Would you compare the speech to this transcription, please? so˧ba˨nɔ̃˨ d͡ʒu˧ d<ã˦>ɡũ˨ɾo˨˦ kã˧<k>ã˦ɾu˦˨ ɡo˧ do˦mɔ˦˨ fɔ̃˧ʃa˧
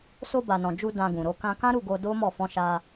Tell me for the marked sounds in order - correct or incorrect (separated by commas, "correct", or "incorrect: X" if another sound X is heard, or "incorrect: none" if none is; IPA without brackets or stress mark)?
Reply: incorrect: ã˧, correct